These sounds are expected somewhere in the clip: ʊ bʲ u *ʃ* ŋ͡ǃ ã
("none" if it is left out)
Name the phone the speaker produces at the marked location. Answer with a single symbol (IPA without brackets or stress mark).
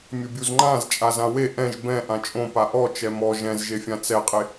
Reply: z